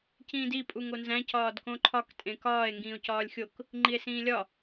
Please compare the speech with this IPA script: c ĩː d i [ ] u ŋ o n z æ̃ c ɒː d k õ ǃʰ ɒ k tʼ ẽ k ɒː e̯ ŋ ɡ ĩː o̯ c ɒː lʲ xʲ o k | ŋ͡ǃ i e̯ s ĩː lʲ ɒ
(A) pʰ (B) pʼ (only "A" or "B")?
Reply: B